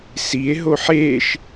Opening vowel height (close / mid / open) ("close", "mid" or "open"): close